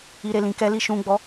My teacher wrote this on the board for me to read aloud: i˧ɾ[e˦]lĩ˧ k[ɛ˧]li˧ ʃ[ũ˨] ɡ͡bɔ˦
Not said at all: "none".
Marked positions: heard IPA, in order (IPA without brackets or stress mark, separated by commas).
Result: e˧, ɛ˧, ũ˧